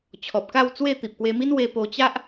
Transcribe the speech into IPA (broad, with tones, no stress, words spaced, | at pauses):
t͡ɕʰɔ˨p̚ka˥˧wt͡swe˥˧ t̪i˨p̚kwe˧mi˦n we˧po˧ t͡ɕa˦ʔ